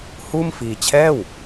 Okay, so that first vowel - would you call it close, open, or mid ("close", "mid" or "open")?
close